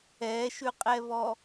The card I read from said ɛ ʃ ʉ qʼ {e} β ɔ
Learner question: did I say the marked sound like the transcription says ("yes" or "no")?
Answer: no